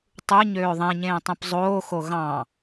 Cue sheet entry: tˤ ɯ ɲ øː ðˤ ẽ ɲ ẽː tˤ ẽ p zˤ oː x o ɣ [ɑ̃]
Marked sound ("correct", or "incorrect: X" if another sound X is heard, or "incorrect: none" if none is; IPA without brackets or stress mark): correct